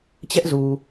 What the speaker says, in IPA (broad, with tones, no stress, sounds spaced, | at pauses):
t͡ɕ ɛ˦ ʔ z u˨